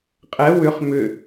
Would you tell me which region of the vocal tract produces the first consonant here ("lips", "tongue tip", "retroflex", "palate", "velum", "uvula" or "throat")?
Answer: uvula